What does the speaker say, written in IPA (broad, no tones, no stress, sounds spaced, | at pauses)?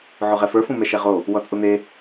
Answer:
ʕ u ʁ ɛ f ə˞ f ũ m ɛ ʃ ɛ ʁ o | w ɔ t͡sʼ u n̪ e